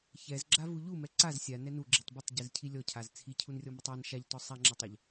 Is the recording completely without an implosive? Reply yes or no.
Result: yes